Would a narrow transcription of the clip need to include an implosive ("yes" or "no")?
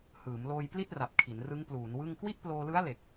no